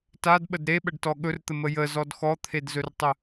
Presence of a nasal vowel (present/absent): absent